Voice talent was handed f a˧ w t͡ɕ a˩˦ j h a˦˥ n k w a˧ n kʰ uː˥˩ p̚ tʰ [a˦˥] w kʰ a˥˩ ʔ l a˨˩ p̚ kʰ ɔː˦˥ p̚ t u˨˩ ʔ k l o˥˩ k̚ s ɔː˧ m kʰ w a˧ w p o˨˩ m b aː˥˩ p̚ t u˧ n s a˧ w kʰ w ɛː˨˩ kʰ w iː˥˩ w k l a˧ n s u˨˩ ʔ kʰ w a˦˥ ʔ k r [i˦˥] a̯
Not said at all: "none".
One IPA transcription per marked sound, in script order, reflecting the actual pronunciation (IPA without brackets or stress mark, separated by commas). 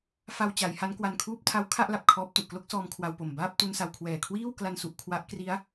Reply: a˦˥, i˦˥